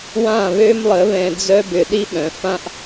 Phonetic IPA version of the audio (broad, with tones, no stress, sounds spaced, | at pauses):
w ã˦˨ β ø˦ m lˠ ə˨˦ β ɛ̃˧ d͡z œ˦ b ʏ˨ ɗ i˦ ɓ œ̃˨ f ã˦ ʔ